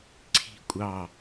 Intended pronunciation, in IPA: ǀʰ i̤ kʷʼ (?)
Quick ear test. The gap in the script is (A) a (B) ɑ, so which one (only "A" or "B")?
B